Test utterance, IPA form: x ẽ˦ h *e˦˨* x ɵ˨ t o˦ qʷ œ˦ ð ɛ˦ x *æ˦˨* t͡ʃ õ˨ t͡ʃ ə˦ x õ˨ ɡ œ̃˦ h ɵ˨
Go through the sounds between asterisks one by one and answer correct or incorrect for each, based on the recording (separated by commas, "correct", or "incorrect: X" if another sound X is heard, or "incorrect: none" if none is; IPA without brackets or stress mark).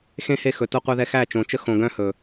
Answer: correct, correct